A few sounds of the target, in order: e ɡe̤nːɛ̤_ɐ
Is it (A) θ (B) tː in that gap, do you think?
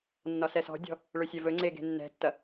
B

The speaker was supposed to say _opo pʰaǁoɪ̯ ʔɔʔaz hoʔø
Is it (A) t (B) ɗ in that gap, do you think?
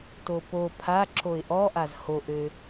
A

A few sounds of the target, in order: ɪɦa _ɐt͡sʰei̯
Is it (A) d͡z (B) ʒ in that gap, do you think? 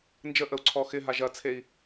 B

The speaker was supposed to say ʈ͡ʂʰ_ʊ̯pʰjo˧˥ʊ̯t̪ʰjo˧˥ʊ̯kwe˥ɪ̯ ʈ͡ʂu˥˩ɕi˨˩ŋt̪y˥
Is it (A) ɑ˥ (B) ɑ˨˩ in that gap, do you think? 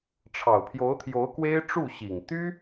B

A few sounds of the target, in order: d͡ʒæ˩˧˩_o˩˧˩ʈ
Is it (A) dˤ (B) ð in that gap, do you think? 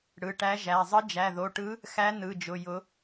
B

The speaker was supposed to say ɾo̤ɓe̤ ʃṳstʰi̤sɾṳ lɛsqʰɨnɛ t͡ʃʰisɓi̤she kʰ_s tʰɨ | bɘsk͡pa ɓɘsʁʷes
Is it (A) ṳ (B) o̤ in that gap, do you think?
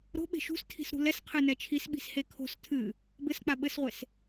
B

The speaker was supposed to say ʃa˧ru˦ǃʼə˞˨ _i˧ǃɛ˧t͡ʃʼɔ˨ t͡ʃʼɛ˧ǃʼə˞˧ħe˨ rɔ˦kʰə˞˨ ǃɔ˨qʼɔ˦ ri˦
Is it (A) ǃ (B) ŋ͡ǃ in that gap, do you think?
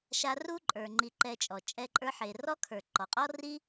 B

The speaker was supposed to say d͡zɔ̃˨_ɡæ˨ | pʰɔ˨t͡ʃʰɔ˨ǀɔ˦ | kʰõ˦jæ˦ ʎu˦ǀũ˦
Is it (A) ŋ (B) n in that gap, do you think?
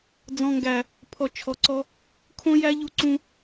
A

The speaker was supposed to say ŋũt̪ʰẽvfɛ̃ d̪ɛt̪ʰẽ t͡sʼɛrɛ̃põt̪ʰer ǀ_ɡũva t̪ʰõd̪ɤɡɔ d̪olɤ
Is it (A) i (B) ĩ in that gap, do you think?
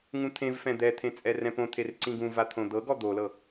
B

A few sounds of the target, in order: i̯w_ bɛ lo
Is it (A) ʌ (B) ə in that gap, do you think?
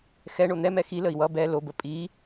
A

